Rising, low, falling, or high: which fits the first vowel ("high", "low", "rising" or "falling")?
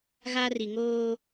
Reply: high